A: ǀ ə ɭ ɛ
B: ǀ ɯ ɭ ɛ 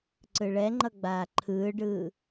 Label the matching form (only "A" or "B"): B